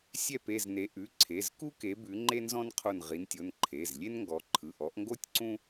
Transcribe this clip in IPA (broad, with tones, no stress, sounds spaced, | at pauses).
sʲ ɛ˦˨ p e˦˨ z n e˨˦ ʔ ʉ˩˧˩ ǀʰ e˩˧˩ z k u˥ k e˨˦ b ʉ˨˦ ŋ͡ǃ e˥ n z ɔ̃˥ n qʰ o˦˨ n ʁ i˨˦ n tʲ o˩˧˩ n ǃʰ e˩˧˩ z lʲ e˥ n ŋ ɡ ɔ˨˦ ǃʰ ɯ˩˧˩ ʔ ɔ˨˦ ʔ ŋ ɡ o˥ tʲ ǀ ũ˥